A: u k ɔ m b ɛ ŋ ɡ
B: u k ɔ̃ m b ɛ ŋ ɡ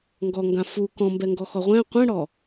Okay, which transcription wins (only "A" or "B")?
B